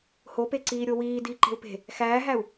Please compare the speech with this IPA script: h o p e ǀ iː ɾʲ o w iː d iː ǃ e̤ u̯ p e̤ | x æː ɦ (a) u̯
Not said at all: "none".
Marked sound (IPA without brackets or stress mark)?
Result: æ